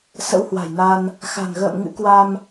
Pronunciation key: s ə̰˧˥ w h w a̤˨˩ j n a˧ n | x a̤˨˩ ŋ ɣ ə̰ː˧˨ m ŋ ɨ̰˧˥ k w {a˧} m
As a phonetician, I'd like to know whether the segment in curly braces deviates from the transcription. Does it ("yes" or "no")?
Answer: no